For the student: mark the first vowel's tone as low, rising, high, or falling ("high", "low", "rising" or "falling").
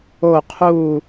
falling